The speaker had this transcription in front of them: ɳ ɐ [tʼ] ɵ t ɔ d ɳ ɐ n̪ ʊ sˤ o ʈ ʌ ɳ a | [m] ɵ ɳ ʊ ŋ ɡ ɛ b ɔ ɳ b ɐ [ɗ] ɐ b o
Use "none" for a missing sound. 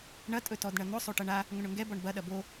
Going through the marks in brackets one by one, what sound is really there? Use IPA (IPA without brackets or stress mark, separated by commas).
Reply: tʼ, ŋ, ɗ